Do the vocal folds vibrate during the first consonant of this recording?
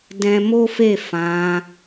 yes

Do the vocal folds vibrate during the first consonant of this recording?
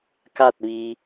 no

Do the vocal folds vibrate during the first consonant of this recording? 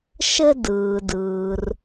no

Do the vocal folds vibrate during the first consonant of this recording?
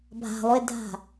yes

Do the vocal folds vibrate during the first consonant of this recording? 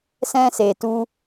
no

